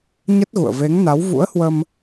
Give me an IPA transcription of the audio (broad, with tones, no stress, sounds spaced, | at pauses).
ɲ ə˦˥ t̚ ɣ ṵ˧˨ ə̯ v e˨˦ ŋ n a˨˦ w v ṵ˧˥ ə̯ h w ə˧ m